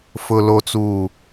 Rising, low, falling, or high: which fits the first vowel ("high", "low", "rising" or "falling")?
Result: low